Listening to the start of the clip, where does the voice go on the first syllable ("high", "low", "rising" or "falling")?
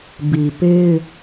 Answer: low